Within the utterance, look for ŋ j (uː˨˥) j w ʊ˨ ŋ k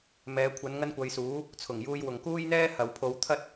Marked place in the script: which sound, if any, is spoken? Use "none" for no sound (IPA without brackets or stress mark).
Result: uː˧